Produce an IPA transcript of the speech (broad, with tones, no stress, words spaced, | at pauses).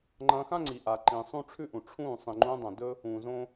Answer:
ŋ͡ǃɐ̃ː˧xã˦ŋ͡ǀi˨ ʔa˨ǃĩ˨ sˤũ˦ʈ͡ʂʰʉ˦ʔũ˨ ʈ͡ʂʰũː˦˨ sˤĩ˨ŋ͡ǃũː˧dˤɐ̃˨ dɵ˦ | ũː˨zõ˦